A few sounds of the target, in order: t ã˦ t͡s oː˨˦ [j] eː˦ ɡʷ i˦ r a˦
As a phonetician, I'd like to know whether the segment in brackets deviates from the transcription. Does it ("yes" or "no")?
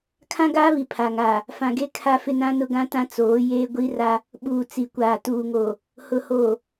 no